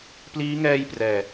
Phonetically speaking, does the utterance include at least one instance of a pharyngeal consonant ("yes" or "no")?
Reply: no